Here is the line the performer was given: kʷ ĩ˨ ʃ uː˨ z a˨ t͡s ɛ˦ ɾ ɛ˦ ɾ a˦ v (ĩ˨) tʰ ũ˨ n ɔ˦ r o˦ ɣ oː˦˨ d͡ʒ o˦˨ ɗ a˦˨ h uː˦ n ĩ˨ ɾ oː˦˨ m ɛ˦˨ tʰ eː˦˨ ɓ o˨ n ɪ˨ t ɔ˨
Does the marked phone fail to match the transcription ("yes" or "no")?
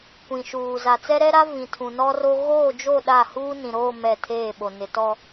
no